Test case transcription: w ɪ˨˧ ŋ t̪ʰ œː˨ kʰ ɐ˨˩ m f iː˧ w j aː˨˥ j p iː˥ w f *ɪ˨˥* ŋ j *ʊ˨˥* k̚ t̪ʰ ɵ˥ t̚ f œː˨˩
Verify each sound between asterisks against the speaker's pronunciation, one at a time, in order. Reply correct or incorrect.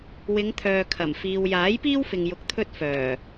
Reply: incorrect: ɪ˨, incorrect: ʊ˧

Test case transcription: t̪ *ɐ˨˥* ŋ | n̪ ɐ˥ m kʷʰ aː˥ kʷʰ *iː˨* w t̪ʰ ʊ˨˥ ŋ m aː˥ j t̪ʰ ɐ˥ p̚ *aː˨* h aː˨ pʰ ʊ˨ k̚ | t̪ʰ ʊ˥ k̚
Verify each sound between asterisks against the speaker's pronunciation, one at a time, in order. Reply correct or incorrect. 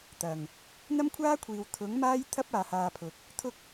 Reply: incorrect: ɐ˨˩, correct, correct

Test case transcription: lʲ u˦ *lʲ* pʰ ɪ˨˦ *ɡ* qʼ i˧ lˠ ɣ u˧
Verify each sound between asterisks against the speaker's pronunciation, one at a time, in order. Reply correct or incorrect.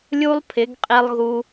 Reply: incorrect: lˠ, correct

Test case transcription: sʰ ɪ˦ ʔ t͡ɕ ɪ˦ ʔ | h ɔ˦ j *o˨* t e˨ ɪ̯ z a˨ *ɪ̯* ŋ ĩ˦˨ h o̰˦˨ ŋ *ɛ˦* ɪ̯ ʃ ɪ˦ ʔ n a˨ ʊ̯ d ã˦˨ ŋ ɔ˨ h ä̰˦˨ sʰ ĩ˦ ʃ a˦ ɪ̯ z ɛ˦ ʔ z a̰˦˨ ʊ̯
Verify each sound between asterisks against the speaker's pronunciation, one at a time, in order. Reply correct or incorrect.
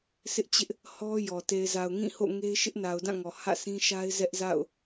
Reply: incorrect: ɔ˨, incorrect: ʊ̯, incorrect: e˦

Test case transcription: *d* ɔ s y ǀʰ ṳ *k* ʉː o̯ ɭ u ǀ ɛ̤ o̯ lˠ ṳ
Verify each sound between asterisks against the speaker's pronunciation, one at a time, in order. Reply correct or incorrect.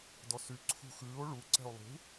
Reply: correct, incorrect: x

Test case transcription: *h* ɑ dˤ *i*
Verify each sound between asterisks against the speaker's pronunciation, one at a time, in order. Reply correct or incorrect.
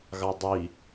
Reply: incorrect: ɣ, correct

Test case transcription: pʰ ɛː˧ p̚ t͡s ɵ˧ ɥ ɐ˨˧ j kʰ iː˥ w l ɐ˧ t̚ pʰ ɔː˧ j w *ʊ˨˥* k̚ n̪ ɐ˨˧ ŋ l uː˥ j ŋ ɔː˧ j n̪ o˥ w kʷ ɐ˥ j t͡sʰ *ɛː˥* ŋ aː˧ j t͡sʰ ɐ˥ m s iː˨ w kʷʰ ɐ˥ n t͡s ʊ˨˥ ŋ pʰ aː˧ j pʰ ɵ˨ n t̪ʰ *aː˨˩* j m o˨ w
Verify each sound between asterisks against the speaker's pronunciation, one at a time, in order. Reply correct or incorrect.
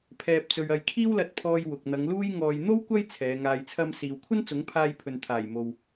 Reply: incorrect: ʊ˨, incorrect: ɛː˨˧, correct

